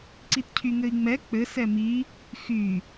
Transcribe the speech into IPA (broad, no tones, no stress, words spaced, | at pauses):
ǀitcʰyŋɘi̯ŋ͡mɛ k͡pɘ sɛmi | xy